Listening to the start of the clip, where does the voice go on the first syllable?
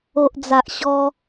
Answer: low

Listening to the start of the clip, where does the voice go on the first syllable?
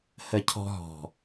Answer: falling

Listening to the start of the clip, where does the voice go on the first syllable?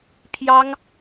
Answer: high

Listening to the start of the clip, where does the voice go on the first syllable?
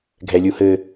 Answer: low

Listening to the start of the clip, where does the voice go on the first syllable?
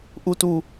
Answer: high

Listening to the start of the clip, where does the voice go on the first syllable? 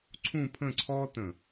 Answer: falling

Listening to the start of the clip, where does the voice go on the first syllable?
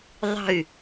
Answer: falling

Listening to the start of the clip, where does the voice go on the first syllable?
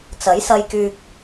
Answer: rising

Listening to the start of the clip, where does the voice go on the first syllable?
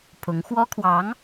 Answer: rising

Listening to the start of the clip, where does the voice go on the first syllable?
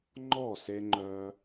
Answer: falling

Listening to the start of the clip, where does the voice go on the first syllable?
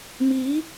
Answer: rising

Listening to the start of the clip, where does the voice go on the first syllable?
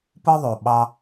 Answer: high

